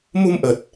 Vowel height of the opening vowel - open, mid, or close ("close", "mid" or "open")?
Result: close